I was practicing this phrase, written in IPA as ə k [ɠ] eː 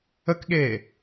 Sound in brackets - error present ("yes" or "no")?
no